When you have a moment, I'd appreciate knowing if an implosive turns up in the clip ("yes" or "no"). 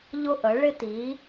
no